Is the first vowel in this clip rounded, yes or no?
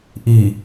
no